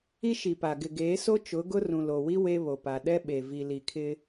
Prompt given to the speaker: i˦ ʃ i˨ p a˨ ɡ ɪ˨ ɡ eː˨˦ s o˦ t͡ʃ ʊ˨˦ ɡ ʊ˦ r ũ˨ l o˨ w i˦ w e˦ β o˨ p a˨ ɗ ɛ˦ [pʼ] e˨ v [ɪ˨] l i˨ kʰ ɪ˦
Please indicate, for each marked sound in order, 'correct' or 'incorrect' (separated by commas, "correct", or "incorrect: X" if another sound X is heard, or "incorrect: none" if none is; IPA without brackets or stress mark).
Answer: incorrect: ɓ, incorrect: i˨